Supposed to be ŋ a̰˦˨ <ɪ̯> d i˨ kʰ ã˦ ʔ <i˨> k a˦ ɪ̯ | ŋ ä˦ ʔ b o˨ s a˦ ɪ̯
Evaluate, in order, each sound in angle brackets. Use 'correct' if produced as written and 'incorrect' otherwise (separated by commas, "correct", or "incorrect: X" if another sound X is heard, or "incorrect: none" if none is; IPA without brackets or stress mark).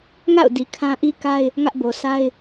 incorrect: ʊ̯, incorrect: i˦